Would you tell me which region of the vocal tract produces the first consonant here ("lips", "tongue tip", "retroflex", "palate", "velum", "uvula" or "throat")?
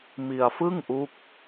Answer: lips